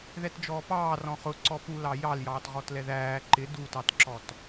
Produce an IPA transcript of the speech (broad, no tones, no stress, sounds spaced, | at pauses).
ð ɛ t d͡ʒ ɔː p ɑː r ɔ̃ χ ʊ ǀ ɔ p u l ɑ j ɑ l j ɑː t ʁ ɔ t l ɛ ð æː ǃ ɪ d u t ɑ t ǁ ɔ t